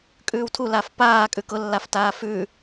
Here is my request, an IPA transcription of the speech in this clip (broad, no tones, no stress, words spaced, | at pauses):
kʼʉːwtʰu lafpaːkʼʉ kʊlːaftaː fʉ